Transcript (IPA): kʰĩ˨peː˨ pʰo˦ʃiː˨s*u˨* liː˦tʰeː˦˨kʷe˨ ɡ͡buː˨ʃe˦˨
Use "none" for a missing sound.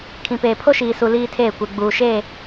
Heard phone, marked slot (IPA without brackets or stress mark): u˨